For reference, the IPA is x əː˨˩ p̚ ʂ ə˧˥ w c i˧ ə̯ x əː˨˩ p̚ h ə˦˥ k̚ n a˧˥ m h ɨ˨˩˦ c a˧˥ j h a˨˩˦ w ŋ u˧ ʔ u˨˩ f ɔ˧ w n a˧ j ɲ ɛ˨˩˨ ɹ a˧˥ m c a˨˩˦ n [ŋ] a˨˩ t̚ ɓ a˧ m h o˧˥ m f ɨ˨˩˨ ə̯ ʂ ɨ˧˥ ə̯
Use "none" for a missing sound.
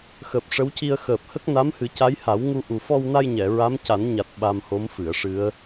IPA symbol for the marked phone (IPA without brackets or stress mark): ɲ